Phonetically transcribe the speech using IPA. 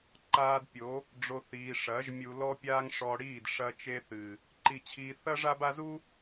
ǃ aː˧ d pʲ o˨˦ | ɖ͡ʐ o˨ θ iː˨ ʂ ɐː˨˦ ʒ mʲ u˧ l ɔ˦ pʲ aː˦ ŋ ʂ ɔ˧ ɽ iː˦˨ d ʂ ɐ˧ t͡ʃ e˧ θ ɨ˨ | ǃ i˧ t͡ɕʰ iː˧ θ ɐ˦ ʐ a˦ b a˦ z u˦

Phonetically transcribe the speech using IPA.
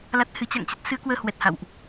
l a˦˥ t̚ h ɨ˨˦ t͡ɕ a̰˧˨ ŋ t͡ɕ ə˦˥ t̚ s ɨ˨˦ ə̯ k w əː˧ h w ɛ˨˩ t̚ h a̰˧˨ w ʔ

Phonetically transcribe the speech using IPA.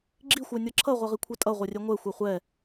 ɡ͡ǁ i xʷ œ nʲ ʌ ǁʰ ʌ ʁʷ ɛ ʁ i kʷʰ ɛ tʼ ʌ ʁʷ ɛ rʲ ɛ ŋʷ ɛ xʷ ɛ χʷ ɛ

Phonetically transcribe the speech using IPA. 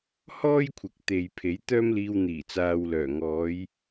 h ɔː˥ j kʷʰ ɪ˨ k̚ t̪ e˨ j pʰ e˨˥ j t̪ œː˥ m l iː˧ w n̪ iː˨˩ t͡s aː˨ w l œː˨˩ ŋ ɔː˨˧ j

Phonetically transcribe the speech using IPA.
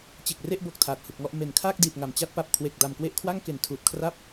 t͡ɕ e˨˩ k̚ r e˥˩ ʔ b o˨˩ k̚ tʰ aː˨˩ t̚ h u˨˩ k̚ ŋ ɔ˥˩ ʔ m e˩˦ n kʰ aː˥˩ k̚ d iː˨˩ t̚ ŋ a˨˩ m t͡ɕ a˦˥ t̚ p a˨˩ p̚ kʰ w e˨˩ k̚ d a˨˩ m k w e˥˩ ʔ kʰ w a˥˩ ŋ k e˨˩ n tʰ uː˨˩ t̚ kʰ r a˥˩ p̚

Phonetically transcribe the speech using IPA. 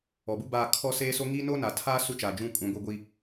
ɔ˨ b u˦ b aː˦˨ kʰ ɔ˦ s eː˦ s o˦ ŋ i˦ n o˦ n a˨ tʰ aː˦ s u˦ t͡ʃ a˨ d͡ʒ ũ˦˨ kʼ ũ˨ ɡʷ i˨ ɡʷ i˨

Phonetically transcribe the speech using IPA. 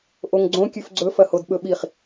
ʔ o ŋ ɡ͡ǀ õ kʲ ʉ f ɡ͡ǀ ɵ f ɐ h o d ɓ ɵ ɓ i χ

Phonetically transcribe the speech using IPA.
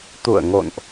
t̪ ṵ˧˨ ə̯ ŋ o̰˧˨ n ʔ

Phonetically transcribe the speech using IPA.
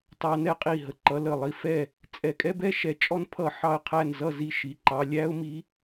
t ɑ˧ n ɛ˧˥ qʼ i˧˩ ɦ ə˧˩ ǃ ʌ˧˥ l ə˧˩ lˠ i˧˩ f ɛ˥˩ | t͡sʼ ɛ˧˩ kʼ ɛ˥ b ɛ˥ ʃ ɛ˧˩ t͡ʃʼ ɔ˥ n pʰ ʌ˥˩ ħ ɑ˥˩ ə̯ qʰ æ˥˩ n z ʌ˥˩ z i˥˩ ʃ i˩˧˩ ǃ ɑ˧ lʲ æ˥ ʊ̯ m i˧˥

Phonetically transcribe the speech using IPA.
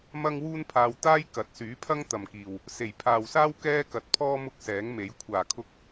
m ɐ˥ ŋ w uː˥ n pʰ aː˧ w t̪ aː˥ j k ɐ˨˥ t̚ s yː˨˥ pʰ ɐ˥ ŋ t̪ ɐ˨ m k iː˨ w | s e˨˩ j pʰ aː˨ w s aː˥ w k ɛː˥ k ɐ˨˥ t̚ pʰ ɔː˥ m ʊ˥ k̚ s ɛː˨˥ ŋ m e˨˥ j kʷʰ aː˨˩ kʰ ʊ˧ k̚

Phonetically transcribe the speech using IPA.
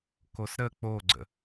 k o s ɾ ə k͡p o ɡ͡ǀ ə̰

